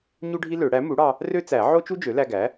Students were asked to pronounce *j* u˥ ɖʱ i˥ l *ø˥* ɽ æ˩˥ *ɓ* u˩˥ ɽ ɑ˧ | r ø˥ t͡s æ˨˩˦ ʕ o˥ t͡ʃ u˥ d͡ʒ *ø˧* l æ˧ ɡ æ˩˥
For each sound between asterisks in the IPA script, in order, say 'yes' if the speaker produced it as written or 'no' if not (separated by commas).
no, no, no, no